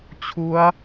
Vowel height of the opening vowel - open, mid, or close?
close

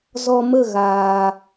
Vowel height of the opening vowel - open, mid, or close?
mid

